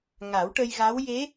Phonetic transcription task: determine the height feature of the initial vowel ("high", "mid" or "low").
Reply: low